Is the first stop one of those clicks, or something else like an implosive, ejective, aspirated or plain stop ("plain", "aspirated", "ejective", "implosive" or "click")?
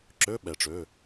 click